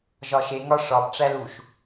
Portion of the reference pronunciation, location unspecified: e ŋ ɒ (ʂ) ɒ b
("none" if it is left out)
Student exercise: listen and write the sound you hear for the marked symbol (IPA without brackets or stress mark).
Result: ʂ